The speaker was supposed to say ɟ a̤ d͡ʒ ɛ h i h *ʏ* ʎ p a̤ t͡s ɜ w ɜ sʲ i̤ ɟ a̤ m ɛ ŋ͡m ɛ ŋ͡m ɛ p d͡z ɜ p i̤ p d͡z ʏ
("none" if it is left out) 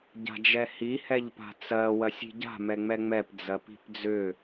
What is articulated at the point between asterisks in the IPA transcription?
ɛ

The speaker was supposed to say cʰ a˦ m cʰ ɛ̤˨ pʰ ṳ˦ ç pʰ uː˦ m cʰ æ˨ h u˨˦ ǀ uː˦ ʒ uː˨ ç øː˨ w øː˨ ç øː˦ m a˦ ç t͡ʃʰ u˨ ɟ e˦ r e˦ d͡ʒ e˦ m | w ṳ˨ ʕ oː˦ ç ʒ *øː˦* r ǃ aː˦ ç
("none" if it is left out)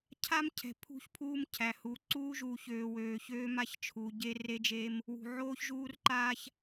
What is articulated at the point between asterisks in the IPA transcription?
uː˦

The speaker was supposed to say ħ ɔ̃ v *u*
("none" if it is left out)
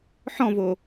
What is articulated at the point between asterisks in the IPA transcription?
o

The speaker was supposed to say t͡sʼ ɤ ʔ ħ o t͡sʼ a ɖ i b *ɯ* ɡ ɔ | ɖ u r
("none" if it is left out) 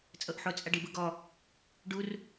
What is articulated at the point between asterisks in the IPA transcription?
ɯ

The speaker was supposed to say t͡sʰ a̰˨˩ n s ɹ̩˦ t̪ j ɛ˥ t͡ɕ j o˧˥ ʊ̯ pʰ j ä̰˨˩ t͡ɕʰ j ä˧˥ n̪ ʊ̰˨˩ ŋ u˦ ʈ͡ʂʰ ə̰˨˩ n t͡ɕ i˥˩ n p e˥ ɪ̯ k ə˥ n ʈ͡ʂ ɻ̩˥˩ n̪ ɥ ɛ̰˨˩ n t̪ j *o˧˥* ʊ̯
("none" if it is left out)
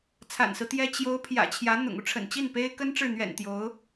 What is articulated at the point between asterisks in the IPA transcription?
o˧˥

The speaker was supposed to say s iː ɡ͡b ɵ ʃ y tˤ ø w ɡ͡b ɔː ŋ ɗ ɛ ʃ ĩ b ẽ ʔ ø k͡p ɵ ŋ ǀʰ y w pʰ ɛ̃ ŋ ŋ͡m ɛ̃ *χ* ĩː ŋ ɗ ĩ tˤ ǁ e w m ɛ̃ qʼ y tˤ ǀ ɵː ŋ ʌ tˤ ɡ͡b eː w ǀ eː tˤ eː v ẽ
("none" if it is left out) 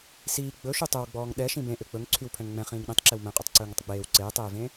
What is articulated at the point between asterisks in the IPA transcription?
χ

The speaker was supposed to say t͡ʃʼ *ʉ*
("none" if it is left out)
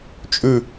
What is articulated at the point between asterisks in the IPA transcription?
ʉ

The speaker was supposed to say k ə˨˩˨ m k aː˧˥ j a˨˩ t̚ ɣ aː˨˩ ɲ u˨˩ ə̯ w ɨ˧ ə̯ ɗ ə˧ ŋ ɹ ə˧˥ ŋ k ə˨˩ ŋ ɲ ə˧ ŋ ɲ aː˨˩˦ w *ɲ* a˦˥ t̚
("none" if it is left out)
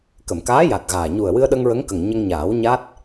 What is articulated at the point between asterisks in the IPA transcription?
ɲ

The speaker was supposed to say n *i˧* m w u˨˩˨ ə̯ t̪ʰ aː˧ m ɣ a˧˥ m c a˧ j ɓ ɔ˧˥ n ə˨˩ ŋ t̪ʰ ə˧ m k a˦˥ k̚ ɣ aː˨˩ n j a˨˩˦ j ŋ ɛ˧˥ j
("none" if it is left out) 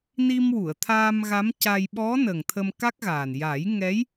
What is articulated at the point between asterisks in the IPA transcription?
i˧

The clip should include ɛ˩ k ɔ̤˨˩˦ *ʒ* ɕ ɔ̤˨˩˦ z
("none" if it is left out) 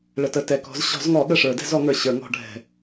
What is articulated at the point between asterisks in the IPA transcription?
z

